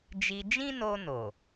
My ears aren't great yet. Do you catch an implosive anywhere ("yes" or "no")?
no